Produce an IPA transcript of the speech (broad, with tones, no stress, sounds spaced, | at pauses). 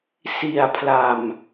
s i˨˩ a̯ pʰ l a˨˩ m